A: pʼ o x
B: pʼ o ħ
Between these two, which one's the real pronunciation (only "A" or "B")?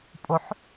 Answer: B